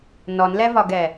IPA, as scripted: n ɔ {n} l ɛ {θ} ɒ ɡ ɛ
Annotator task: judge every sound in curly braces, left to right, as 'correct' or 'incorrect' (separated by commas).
correct, incorrect